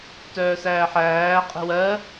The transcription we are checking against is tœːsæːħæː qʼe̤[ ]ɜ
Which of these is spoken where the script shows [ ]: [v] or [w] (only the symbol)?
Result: w